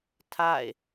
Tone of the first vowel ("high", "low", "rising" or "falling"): falling